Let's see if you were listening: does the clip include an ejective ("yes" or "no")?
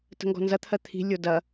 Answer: no